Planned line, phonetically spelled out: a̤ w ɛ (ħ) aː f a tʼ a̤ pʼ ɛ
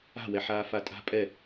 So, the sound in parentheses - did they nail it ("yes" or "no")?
yes